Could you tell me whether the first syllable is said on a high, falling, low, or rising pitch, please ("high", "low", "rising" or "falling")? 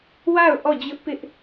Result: falling